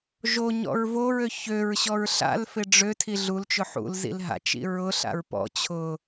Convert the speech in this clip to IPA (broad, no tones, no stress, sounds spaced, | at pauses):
ʒ o ɲ ɔ̰ ɹ v o ɹ ø ç ø ɹ ɕ ɔ ɹ ɬ a̰ l f ɪ ɖ͡ʐ ø tʰ i ɮ u l t͡ʃ ʊ ħ ṵ l z ḭ l ɦ a̰ t͡ʃ ḭ ɹ ʊ ɬ a̰ ɹ p ɔ̰ t͡ɕʰ ʊ